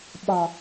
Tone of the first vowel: low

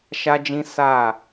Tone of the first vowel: high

